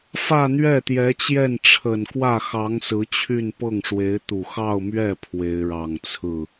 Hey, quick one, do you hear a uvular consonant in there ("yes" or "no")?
no